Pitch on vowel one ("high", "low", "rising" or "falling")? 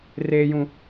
high